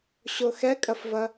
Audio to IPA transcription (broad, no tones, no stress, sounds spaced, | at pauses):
ɕ o x ɛ kʼ ɐ f v ɐ